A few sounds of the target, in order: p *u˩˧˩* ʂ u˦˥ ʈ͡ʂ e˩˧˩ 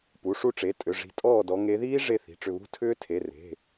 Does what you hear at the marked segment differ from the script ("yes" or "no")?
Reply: no